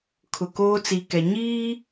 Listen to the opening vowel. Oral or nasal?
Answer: oral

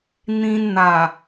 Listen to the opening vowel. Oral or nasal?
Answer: nasal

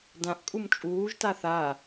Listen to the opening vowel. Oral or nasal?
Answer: nasal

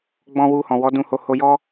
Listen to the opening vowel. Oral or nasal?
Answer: nasal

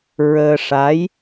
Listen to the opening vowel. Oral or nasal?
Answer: oral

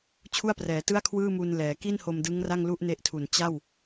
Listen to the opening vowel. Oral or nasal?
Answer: oral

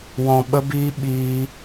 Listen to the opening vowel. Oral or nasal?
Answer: nasal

